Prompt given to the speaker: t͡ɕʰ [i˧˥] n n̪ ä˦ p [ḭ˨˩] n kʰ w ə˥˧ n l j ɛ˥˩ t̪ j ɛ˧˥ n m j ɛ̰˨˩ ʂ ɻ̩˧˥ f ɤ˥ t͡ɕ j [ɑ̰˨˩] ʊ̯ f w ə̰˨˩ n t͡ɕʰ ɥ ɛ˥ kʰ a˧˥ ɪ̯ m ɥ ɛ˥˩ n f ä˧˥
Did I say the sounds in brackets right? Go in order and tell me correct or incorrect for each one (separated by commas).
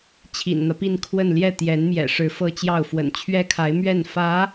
incorrect, incorrect, incorrect